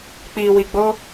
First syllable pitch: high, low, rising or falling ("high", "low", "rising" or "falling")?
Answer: low